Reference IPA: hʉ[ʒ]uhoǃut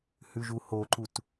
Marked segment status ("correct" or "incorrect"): correct